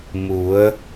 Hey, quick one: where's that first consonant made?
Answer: lips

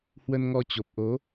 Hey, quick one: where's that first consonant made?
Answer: throat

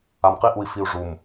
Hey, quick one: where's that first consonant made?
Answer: lips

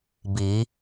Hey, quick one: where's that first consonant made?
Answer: lips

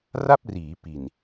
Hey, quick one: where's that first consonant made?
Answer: tongue tip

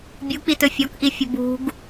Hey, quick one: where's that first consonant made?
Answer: lips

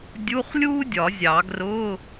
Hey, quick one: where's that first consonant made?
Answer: tongue tip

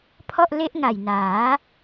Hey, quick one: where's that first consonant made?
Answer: lips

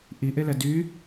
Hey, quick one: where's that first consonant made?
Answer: throat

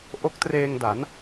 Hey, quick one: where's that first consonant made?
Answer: throat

